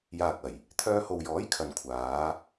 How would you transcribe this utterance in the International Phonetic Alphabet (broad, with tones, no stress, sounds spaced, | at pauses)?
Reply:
j aː˨ k̚ ɐ˨˩ j | t̪ʰ œː˧ h o˨ w j ɔː˨˥ j kʰ ɐ˨ n kʷʰ aː˨˧